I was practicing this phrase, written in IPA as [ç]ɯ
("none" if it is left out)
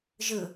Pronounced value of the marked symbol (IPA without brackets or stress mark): ʒ